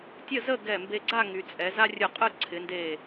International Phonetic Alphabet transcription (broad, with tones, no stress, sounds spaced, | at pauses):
tʲ ə˥˧ z ə˥˧ ɡ ɛ˧˩ m b e˧ ɡ͡ǀ a˥˧ ŋ y˩˧ t͡sʼ ɛ˩˧ z a˥ rʲ ɯ˧˩ qʼ ɯ˥˧ ǀʰ ɪ˩˧ n d e˧˩